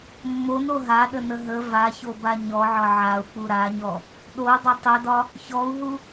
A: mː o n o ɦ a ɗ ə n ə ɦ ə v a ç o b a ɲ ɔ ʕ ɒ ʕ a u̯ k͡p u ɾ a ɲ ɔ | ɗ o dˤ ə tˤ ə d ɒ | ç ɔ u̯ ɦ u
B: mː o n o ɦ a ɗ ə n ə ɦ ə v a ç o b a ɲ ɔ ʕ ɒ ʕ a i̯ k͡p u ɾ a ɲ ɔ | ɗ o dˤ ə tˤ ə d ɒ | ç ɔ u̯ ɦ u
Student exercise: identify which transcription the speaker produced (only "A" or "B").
A